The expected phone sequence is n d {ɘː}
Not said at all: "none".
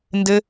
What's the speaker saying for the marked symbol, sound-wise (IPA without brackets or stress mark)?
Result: ɘ